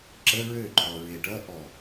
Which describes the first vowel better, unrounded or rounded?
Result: unrounded